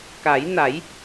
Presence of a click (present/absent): absent